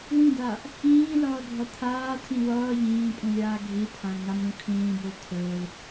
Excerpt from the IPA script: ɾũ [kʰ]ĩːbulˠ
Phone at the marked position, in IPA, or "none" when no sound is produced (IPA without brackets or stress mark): kʰ